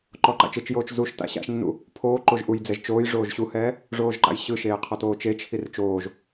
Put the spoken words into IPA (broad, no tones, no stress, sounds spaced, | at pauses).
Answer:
ǃ ɔ ǃ a̰ t͡ʃ ɯ t͡ʃ j oː t͡ʃ z u ʃ t a̰ ɕ a̰ ʃ nː ṵ | pʰ oː ǃ o ʒ ʔ u j d͡z ɛ ʒ t͡ʃ oː j ʐ oː ʒ ɕ u h ɛː | ʐ oː ʒ ǃ a̰ j ɕ ɯ ʃ eː qʰ ɔ t oː t͡ʃ e t͡ʃʰ i r t͡ʃ oː ʒ